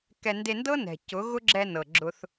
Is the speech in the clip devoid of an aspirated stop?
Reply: yes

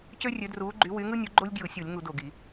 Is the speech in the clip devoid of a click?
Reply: no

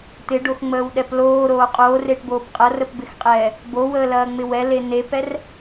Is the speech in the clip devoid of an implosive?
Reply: no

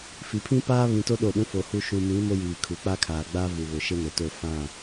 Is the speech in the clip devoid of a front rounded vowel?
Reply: yes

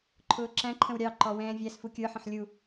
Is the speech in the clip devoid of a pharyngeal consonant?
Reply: no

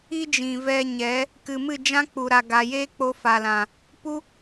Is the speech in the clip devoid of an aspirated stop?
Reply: yes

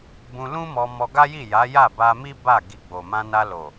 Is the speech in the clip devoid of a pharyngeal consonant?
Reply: yes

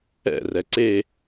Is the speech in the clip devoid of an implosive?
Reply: yes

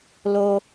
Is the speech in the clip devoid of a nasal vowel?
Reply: yes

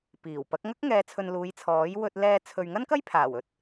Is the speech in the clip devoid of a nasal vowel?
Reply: yes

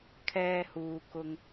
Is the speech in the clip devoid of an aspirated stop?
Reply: no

